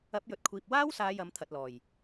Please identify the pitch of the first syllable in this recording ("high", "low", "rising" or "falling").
rising